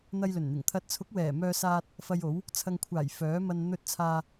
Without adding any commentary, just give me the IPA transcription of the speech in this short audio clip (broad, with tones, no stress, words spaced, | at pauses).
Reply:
n̪ɐ˧jlɵ˨˩nn̪ɪ˨˩ŋ t̪ʰɐ˨t̚t͡sʰʊ˨˥k̚wɛː˨˩ mœː˧saː˧t̚ | fɐ˧jo˨˥w | t͡sʰɐ˨ŋkʷʰaː˨˩j fœː˨˥mɐ˧n n̪ɵ˧t̚t͡sʰaː˧